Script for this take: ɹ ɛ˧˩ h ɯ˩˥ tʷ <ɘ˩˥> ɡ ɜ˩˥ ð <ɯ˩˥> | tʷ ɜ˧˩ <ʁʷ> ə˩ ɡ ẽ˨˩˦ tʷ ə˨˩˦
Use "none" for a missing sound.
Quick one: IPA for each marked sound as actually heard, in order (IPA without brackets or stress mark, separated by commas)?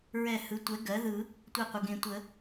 ɛ˩˥, ɯ˨˩˦, qʷ